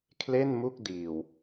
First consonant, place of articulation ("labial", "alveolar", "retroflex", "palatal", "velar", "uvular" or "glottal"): velar